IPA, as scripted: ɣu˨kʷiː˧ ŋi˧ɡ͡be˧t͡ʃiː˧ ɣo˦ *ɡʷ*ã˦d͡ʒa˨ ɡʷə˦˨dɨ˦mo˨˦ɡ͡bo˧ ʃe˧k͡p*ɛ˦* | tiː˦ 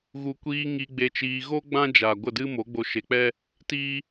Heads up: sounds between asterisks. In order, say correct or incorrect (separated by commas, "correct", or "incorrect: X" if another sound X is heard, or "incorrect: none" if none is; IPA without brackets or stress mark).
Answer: incorrect: ɡ͡b, correct